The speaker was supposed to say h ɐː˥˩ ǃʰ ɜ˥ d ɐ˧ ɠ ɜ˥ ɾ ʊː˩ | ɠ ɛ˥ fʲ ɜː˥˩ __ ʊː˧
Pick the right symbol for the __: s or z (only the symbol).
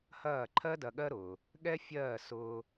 s